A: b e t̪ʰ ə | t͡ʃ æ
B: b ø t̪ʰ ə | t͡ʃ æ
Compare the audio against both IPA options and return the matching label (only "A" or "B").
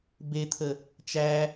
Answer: A